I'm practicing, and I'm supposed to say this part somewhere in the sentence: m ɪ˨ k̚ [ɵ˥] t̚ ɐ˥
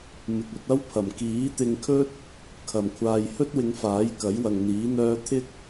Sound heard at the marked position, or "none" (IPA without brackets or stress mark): ɵ˧